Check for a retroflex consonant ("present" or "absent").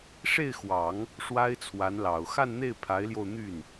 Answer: present